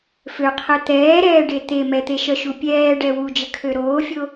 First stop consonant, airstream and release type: aspirated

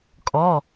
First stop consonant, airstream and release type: ejective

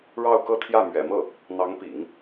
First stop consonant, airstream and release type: plain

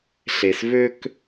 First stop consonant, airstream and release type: plain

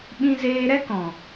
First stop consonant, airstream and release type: implosive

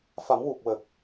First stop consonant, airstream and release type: plain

